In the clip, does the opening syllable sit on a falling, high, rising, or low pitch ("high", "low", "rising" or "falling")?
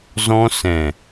high